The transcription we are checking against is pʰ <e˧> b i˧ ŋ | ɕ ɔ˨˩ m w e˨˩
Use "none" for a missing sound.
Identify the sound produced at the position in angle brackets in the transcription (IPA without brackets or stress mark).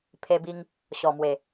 e˧